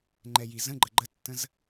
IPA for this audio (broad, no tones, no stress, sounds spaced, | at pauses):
ŋ͡ǃ ɛ j i z ə̃ ɡ͡ǃ ə ɡ͡ǃ ə tː ə̃ z